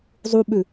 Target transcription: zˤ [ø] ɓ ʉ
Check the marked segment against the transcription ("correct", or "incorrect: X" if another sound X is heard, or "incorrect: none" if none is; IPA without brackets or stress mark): incorrect: u